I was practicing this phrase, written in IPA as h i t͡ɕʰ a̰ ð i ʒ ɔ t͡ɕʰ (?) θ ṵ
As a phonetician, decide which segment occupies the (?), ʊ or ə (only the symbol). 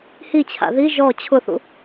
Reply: ʊ